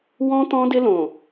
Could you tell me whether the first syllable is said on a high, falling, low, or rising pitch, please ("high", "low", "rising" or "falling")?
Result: high